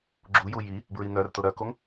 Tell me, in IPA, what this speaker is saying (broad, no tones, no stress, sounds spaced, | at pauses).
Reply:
ɡ͡ǁ u j u j i | b ɹ i n̪ œ r t ʊ ɾ œ k o ŋ